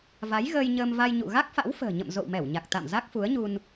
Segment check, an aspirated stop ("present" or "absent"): absent